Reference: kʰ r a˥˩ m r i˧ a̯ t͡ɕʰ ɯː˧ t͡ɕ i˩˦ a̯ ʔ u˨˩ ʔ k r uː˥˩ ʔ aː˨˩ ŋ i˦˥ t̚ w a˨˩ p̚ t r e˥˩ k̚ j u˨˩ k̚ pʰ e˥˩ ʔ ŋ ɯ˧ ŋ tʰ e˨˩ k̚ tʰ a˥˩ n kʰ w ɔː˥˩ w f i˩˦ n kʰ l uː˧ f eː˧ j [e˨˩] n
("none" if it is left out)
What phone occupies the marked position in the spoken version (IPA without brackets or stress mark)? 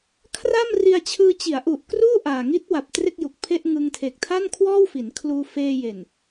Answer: e˨˩